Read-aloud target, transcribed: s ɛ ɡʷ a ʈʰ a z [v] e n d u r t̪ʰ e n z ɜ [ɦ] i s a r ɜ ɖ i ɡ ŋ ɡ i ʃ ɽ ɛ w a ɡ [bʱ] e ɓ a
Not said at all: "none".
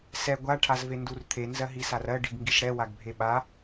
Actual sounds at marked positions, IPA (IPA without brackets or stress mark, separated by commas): v, ɦ, bʱ